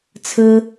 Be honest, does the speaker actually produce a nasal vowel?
no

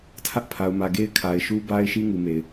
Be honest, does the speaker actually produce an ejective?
no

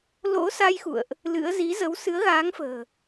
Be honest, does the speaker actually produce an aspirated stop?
no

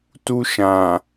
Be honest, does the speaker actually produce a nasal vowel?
yes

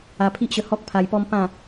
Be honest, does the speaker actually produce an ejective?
no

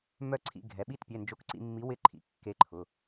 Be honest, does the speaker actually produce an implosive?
yes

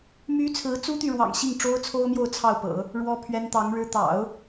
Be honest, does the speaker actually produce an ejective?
no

